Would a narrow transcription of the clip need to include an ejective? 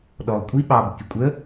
yes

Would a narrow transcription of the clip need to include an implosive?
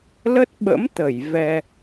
yes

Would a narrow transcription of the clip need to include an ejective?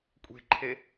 yes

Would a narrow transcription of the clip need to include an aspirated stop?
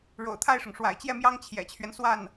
yes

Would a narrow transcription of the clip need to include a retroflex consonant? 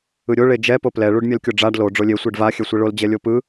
yes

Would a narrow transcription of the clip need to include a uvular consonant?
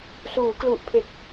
no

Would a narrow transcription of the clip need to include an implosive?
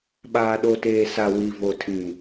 yes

